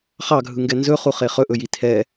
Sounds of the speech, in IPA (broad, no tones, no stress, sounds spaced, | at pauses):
χ ɑ ɡʱ ɯ ŋ ɡ ɛ n z ɵ χ u χ e χ ɵ ʔ ɵ j i tʰ ɛ